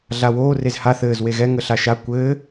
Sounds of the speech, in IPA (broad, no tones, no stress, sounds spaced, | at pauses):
ɮ a w oː r e z h a θ ɘː z w e ɣ ɛ ŋ ə ɬ a ʃ a kʷ ɘː